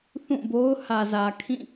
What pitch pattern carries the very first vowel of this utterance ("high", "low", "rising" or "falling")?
falling